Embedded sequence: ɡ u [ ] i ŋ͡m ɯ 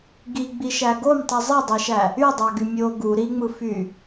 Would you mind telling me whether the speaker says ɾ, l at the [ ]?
ɾ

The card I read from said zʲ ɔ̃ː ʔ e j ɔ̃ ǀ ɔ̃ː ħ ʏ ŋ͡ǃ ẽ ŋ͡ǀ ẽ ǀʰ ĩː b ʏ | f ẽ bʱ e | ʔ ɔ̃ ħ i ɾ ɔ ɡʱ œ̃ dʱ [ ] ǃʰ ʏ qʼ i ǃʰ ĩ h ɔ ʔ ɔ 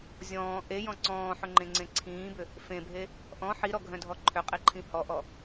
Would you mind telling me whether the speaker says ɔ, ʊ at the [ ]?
ɔ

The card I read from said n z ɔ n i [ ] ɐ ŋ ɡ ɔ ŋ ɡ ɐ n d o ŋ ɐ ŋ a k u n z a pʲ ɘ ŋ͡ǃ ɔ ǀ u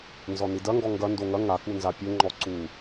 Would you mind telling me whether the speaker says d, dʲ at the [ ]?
d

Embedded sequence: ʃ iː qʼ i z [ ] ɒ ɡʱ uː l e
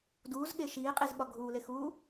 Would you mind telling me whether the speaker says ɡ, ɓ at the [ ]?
ɓ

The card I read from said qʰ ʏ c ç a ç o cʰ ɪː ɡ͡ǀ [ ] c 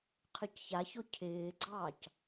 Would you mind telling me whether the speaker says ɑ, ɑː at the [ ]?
ɑː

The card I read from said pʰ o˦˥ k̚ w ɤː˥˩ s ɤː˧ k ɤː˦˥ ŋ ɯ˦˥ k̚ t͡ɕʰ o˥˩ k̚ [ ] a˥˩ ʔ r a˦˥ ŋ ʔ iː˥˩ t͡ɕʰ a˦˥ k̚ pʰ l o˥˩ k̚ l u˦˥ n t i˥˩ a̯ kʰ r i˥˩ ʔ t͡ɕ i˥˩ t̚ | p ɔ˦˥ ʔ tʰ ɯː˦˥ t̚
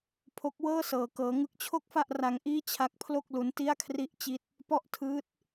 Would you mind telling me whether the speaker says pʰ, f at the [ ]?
f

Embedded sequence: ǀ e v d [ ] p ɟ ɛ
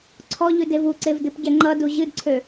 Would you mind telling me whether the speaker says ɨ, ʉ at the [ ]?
ɨ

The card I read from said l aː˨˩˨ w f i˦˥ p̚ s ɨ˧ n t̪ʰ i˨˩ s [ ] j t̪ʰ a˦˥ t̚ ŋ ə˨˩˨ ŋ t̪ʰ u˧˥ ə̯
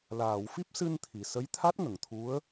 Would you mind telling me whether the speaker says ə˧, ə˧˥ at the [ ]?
ə˧˥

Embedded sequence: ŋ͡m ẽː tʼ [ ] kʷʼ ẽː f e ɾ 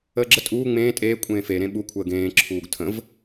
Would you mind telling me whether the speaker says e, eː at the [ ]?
eː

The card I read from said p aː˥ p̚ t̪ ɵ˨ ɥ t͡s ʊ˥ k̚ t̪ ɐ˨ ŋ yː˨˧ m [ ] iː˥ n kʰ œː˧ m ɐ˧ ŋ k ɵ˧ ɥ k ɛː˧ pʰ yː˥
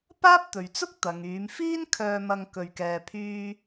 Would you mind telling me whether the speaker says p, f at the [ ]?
f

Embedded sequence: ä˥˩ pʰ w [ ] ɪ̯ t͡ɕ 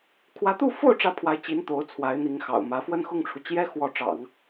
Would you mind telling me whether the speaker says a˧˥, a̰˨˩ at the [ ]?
a˧˥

